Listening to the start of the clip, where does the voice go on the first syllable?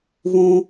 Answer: high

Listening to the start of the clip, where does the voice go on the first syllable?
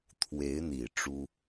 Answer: rising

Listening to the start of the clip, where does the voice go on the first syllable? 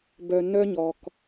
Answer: low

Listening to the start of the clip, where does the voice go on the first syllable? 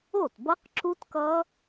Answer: falling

